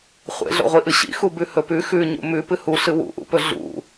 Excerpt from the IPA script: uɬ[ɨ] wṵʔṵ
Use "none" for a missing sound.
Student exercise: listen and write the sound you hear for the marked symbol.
ɨ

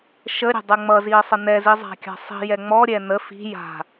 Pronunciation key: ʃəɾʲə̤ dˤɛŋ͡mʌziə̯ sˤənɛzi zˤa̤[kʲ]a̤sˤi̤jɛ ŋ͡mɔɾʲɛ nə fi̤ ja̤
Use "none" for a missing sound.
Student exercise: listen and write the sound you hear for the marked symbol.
kʲ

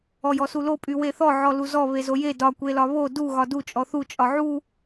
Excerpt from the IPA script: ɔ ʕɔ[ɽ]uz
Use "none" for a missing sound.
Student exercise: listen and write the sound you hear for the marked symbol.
l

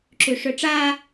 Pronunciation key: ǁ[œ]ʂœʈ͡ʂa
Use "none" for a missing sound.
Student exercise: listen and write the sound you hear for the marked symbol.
ø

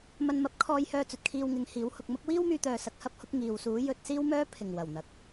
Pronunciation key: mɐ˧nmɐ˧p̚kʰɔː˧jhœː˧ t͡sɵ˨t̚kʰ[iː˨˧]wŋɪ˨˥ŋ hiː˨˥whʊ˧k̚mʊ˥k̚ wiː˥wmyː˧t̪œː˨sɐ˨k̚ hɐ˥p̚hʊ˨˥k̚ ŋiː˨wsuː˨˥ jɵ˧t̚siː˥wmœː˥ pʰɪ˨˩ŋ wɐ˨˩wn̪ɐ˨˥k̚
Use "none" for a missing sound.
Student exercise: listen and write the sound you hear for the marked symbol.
iː˧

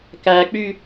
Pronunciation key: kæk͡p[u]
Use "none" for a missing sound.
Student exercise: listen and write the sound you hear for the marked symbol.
y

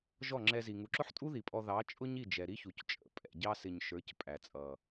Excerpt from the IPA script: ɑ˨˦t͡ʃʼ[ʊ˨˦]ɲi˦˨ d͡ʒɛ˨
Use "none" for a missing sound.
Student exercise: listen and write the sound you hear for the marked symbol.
ʊ˦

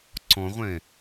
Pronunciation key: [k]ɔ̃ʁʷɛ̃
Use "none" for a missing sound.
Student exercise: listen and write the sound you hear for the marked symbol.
ǀ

